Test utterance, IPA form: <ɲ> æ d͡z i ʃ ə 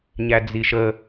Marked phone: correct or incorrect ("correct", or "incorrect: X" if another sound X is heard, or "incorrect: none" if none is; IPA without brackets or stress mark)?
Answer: correct